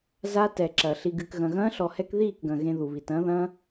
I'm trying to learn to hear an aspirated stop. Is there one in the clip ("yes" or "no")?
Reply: no